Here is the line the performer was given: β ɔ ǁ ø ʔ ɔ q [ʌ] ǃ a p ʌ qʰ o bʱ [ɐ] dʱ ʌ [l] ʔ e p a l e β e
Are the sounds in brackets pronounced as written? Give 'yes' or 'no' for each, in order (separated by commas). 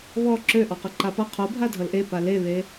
yes, no, yes